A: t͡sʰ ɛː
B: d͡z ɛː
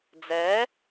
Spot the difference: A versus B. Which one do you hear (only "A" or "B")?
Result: B